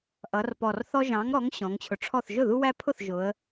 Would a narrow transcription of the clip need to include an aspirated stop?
yes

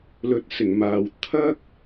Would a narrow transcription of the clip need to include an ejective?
no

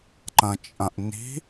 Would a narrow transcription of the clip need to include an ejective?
yes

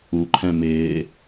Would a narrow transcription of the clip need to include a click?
yes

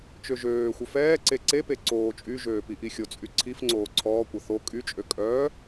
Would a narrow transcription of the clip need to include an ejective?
yes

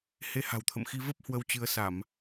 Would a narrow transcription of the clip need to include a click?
no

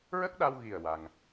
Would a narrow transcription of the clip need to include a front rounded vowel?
no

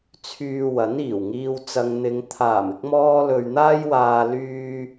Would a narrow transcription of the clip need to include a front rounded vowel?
yes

